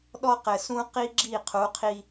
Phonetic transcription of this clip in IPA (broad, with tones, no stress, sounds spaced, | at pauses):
ɗ ɔ˦ q ɘ˨ s ũ˦ q i˦ ɡ͡ǁ i˦˨ qʰ u˨˦ qʰ i˦